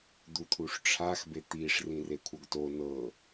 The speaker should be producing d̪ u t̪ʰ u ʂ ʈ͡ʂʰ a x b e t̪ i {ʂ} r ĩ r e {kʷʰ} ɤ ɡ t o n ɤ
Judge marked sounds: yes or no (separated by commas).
yes, yes